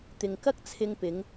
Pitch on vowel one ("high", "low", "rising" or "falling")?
low